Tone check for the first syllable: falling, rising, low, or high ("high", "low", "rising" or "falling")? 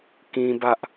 high